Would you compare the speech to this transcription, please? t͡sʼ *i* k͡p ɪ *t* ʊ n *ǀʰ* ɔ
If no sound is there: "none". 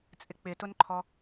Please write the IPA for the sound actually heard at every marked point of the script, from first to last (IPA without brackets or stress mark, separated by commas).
ɪ, t, ǃʰ